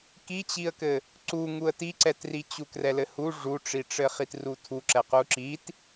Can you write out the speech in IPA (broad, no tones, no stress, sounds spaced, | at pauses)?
k i t͡ɕ i ə̯ k ɘ | ǀ u ŋ u ə̯ t i ǀ ɛ t r i t͡ɕ u k r ɛ l ɘ h u ʐ u ʈ͡ʂ i ʈ͡ʂ ɘ χ i t r u tʰ u ǁ ɛ q u ǁ i t